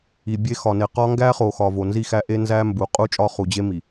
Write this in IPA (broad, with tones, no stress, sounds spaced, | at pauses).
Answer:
i˨ bʲ e˦ x ɒ˨ n e˨ q ɒ˦ ŋ ɡ æ˦ χ o˨ x ɒ˨ v o˨ n z i˦ x æ˦ ʔ e˦ n z æ˦ m b u˨ qʼ u˦ t͡ʃʼ ɒ˦ χ u˨ d͡ʑ e˦ m i˨